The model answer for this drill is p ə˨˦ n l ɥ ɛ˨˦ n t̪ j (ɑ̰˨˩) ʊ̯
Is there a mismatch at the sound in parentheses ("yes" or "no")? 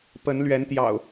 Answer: no